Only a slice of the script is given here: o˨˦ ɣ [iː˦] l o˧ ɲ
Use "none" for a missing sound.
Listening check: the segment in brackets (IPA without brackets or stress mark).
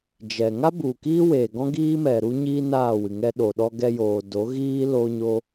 iː˦